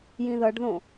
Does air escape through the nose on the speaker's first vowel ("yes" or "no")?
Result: yes